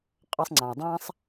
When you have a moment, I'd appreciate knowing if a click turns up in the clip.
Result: yes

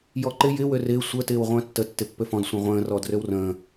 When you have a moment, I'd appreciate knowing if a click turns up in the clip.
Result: yes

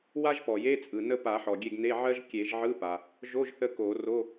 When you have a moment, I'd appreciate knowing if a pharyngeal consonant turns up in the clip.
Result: yes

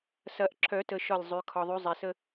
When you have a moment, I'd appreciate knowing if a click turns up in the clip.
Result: yes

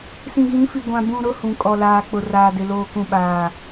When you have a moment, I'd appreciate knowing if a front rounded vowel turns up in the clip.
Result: no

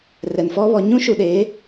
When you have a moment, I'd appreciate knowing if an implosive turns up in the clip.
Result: yes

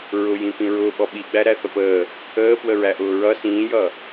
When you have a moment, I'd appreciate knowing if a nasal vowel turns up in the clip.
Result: yes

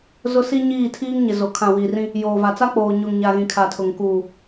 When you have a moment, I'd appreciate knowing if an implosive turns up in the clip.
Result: no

